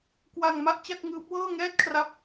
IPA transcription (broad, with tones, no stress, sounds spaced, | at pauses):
k w a˧ ŋ m a˥˩ ʔ t͡ɕ a˥˩ k̚ ŋ ɯː˦˥ p̚ w ɤː˥˩ ŋ ɛː˥˩ t̚ kʰ r a˦˥ p̚